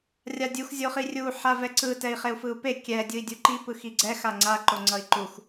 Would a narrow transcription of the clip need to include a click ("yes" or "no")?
yes